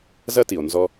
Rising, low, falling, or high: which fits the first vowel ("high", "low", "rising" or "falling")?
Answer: high